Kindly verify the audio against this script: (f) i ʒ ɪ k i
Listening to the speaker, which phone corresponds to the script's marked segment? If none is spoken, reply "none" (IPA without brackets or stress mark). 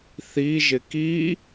θ